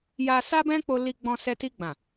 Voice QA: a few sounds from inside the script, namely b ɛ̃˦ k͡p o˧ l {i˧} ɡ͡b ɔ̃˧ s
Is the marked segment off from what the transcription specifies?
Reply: no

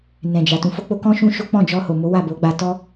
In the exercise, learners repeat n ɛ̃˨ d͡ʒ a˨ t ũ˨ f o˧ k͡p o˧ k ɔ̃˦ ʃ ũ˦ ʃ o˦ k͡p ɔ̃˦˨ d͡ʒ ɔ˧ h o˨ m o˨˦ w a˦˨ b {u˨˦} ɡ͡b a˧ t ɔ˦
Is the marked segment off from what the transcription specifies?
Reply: yes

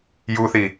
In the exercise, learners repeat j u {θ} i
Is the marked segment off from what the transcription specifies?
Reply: no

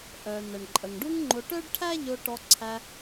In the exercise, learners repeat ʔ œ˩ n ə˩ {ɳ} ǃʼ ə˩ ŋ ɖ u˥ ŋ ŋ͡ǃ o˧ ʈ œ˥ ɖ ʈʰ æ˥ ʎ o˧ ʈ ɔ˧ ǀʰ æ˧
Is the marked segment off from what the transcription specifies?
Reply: no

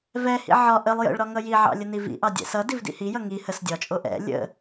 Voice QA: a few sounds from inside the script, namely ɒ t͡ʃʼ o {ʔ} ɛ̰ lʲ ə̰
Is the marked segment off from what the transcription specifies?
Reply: no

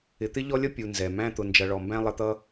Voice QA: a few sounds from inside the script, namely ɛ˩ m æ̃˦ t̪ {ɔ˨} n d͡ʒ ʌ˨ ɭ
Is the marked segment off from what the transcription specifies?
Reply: yes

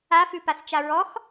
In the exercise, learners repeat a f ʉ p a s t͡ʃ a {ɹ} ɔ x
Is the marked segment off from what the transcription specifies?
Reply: no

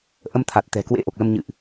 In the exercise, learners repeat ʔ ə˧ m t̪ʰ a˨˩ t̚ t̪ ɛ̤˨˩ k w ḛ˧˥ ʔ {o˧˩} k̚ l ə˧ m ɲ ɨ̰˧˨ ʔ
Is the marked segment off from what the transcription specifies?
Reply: yes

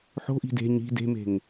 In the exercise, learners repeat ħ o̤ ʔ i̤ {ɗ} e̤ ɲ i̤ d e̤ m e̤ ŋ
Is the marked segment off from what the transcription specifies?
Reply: yes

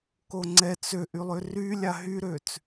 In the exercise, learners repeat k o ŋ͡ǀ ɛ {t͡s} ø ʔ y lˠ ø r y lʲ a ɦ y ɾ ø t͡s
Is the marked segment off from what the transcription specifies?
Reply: no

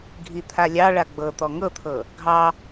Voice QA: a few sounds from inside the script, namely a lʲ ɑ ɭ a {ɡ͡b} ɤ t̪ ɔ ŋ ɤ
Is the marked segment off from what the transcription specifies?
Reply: no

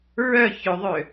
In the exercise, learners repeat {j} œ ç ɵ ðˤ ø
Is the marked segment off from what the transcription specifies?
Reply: yes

